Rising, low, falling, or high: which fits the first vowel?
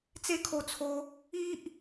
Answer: high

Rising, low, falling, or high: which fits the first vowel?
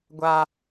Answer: low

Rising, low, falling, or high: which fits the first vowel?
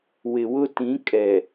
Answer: low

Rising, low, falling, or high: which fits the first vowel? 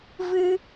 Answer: high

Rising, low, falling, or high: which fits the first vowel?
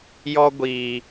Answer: high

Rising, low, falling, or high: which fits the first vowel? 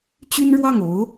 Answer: high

